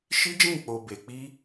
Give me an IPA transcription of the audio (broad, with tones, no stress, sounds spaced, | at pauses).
ʃ i˦ d͡ʒ ĩ˦˨ k͡p o˨ b e˨ k͡p i˧